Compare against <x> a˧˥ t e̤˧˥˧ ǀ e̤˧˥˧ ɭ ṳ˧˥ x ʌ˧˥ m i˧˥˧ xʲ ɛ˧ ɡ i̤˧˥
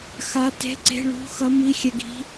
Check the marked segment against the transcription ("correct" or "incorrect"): correct